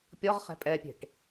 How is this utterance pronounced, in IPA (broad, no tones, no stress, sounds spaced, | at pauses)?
pʲ ɔ ʁ χ ɛ̤ pʼ ɛ pʲ e̤ ʈ